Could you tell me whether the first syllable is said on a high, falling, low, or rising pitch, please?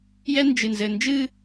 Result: high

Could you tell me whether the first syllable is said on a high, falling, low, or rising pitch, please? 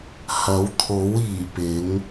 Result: rising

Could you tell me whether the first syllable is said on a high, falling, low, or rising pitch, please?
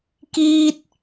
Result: high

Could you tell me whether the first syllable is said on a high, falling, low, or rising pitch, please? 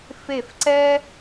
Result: falling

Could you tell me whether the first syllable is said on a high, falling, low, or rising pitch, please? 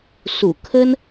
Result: low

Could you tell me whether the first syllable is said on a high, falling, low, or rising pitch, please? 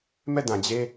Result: falling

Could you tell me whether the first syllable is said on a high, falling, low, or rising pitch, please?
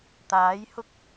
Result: rising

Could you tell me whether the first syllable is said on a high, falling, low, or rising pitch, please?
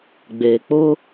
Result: low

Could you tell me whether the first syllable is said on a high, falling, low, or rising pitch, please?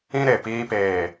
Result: high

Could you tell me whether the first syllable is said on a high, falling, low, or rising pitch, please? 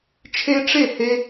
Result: high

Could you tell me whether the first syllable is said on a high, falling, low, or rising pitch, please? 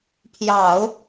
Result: low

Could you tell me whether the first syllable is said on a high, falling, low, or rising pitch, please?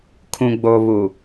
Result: low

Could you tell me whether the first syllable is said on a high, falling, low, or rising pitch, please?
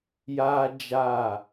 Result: high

